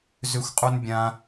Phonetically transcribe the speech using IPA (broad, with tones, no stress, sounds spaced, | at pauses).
z ʏ˦ xʷ qʼ u˦ n bʲ ã˦